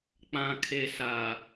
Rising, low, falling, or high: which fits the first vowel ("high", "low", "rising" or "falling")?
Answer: low